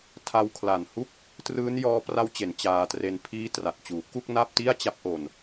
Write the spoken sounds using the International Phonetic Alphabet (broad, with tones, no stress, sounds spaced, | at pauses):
tʰ a˧ w kʰ l a˨˩ n h u˥˩ k̚ | t r ɯː˦˥ n j ɔː˦˥ p r a˦˥ w t͡ɕ e˩˦ n t͡ɕ aː˧ t r e˧ n pʰ iː˦˥ t r a˨˩ t̚ t͡ɕ uː˩˦ k u˥˩ k̚ n a˥˩ p̚ t i˥˩ a̯ t͡ɕ a˦˥ p̚ ʔ o˧ n